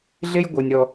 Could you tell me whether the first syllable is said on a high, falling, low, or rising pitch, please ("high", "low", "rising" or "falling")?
high